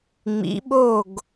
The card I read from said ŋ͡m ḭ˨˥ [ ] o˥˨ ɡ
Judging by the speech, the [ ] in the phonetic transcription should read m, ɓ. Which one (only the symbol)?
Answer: ɓ